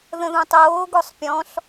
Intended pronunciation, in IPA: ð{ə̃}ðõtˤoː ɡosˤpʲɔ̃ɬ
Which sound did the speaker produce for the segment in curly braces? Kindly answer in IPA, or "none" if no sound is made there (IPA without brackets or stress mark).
ə̃